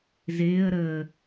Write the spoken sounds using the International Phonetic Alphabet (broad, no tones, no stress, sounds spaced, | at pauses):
z ɪː ə̯ ɾ əː